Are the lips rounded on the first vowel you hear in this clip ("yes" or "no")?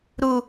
yes